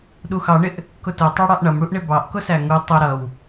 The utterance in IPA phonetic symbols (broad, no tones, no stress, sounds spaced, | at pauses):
ɗ u x ɑ ɳ ɪ ʔ | k ʊ t ʊ tˤ ɑ ɽ ɑ ʔ ɳ ʌ m ɽ u ʔ ɳ ɪ b ɑ ʔ k ʊ s æ ŋ u tˤ ʊ ɾ ʌ w